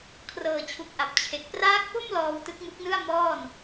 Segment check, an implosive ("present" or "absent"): absent